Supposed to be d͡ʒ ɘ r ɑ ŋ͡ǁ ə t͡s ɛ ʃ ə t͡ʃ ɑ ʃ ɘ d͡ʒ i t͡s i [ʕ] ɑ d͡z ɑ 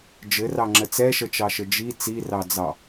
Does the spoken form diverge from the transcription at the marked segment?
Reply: yes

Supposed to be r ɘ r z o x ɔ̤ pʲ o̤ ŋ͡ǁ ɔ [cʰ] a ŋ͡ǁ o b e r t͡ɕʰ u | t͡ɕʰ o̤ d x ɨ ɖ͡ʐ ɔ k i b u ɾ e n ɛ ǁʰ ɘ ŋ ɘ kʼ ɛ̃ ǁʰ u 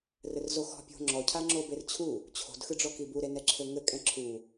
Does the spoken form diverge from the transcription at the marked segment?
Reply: no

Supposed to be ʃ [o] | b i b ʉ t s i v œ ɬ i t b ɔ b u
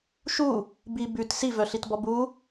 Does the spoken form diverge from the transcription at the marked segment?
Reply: yes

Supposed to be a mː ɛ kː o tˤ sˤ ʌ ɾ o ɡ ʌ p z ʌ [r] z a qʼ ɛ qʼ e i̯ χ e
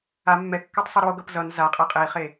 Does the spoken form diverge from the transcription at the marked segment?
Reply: yes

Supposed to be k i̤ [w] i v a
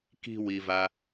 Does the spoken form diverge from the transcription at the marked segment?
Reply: no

